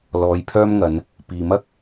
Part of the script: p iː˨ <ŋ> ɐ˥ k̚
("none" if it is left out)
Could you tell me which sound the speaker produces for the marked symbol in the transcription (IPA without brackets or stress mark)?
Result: m